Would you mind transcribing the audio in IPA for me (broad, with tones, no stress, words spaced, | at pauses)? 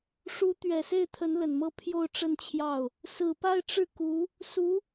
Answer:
ʂu˧˥t̪ɥɛ˨˩se˥˩ɪ̯t̪ʰə˧˥n lə˨˩nmɤ˥˧ pʰjo˥˧ʊ̯ʈ͡ʂə˥˧nt͡ɕʰjɑ˥˩ʊ̯ | sɹ̩˨˩pa˥˧ɪ̯ʈ͡ʂɻ̩˥˩ku˧˥ | su˧˥